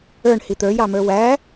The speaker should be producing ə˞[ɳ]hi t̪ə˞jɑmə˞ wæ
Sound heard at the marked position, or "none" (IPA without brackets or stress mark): ɳ